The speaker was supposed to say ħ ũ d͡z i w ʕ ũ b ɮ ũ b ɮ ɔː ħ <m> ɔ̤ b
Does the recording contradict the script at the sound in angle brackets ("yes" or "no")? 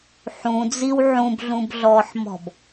no